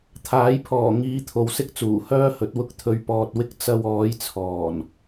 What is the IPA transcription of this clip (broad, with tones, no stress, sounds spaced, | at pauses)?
t̪ʰ aː˨˥ j pʰ ɔː˨˩ ŋ iː˨˧ t̪ʰ o˨ w s ɪ˥ k̚ t͡s uː˨˩ h œː˥ h ɵ˨˥ t̚ w ʊ˧ k̚ t̪ʰ ɵ˨ ɥ p ɔː˨ t̚ w ɪ˧ k̚ t͡s ɐ˧ w ɔː˨˧ j t͡sʰ ɔː˨˩ n